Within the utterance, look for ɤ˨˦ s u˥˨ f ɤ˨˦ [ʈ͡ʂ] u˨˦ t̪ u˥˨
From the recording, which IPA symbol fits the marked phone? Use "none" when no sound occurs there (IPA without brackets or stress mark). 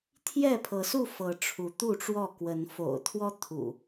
ʈ͡ʂʰ